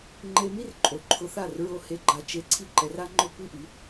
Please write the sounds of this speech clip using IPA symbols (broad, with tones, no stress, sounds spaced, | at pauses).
ŋ͡ǃ e˧ m i˦ r ǃʼ o˨˦ ǃʰ ʊ˧ θ a˦˨ r ɹ o˧ h e˧ ɡ͡ǃ a˧ t͡ʃ e˧ ǀʰ i˦ ǃ ɛ˧ r a˦ ŋ͡ǃ ʊ˦ kʷ i˦ ʔ i˨˦